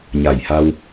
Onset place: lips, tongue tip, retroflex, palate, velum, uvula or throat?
palate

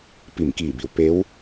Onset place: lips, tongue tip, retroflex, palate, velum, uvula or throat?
lips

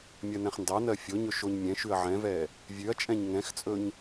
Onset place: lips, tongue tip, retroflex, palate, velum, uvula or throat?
lips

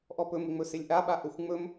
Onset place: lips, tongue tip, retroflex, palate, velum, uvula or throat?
throat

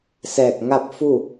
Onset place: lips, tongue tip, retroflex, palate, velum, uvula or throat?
tongue tip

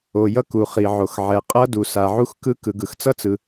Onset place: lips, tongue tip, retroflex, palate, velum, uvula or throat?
palate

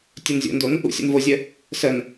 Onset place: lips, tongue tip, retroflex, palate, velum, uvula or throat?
tongue tip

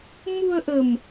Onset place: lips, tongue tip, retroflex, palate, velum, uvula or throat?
lips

